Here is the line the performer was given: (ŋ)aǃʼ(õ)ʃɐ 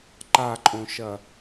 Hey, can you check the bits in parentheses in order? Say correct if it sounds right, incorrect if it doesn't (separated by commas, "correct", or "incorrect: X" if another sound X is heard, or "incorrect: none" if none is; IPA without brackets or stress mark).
incorrect: ǃ, correct